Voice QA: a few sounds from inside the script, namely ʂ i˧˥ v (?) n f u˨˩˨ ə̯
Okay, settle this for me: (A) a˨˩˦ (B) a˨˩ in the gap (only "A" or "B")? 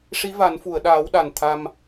A